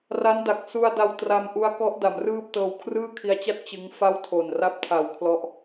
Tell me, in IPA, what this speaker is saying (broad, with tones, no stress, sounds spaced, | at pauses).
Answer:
r a˦˥ n d a˨˩ k̚ s u˧ a̯ d a˧ w t r a˧ m ʔ u˦˥ a̯ k ɔ˦˥ ʔ d a˩˦ m r ɯː˥˩ p̚ t ɤː˧ w kʰ r ɯː˥˩ kʰ i˧ a̯ t͡ɕ a˥˩ t̚ t͡ɕ ɯ˦˥ ŋ f a˥˩ w tʰ o˨˩ n r a˥˩ p̚ tʰ a˨˩ w kʰ l ɔ˦˥ ʔ